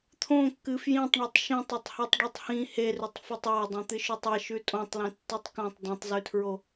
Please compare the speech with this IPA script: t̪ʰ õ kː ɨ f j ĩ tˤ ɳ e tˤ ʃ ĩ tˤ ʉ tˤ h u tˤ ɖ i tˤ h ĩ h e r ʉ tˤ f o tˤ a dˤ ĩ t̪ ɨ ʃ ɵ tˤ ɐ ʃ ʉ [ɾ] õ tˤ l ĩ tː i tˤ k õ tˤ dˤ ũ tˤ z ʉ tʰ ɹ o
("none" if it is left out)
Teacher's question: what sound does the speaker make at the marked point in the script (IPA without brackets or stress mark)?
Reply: tʼ